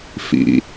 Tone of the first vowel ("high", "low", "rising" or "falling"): low